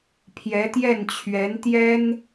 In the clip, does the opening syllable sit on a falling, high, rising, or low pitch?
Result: rising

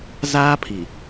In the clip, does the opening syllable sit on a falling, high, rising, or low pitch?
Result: high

